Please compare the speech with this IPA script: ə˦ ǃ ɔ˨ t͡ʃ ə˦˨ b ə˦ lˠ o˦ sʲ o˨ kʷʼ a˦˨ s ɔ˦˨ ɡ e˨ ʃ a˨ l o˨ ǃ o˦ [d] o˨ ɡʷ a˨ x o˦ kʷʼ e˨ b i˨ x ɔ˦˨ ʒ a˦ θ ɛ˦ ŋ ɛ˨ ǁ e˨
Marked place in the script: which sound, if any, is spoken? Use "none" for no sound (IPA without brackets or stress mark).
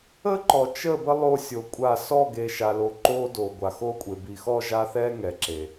d